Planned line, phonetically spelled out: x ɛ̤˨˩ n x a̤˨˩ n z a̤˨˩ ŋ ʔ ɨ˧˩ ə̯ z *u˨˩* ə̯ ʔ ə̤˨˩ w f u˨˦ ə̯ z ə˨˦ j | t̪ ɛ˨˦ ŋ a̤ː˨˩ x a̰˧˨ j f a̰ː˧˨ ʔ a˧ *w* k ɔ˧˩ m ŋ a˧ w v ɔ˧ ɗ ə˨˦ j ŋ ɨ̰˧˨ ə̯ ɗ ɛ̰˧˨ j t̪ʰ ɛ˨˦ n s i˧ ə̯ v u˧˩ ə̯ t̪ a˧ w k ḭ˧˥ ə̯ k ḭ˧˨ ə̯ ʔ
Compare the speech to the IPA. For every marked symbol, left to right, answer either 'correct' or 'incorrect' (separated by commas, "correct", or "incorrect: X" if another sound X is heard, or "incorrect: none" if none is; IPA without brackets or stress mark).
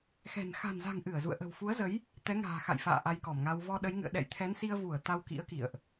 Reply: incorrect: ṵ˧˨, incorrect: j